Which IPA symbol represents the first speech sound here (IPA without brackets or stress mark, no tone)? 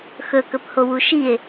x